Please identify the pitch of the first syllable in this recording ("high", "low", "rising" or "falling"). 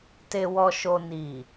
low